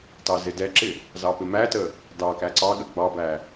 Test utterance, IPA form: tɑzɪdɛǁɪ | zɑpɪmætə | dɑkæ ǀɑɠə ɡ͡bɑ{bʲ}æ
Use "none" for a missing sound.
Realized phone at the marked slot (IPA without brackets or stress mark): b